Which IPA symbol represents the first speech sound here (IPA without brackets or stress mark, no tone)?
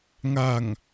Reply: ŋ